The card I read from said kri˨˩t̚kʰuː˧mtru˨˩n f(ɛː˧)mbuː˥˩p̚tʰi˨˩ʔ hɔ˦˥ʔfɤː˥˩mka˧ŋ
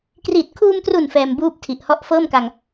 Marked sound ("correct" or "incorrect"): correct